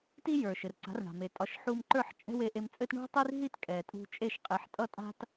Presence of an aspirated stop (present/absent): absent